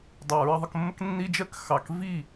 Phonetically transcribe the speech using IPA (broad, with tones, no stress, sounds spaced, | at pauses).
dˤ ɑ˨ ɹ ə˧ ðˤ ə˧ k mː ə˦ k nː i˦ d͡ʒ ɜ˦ k x ɑ˨ k v i˦˨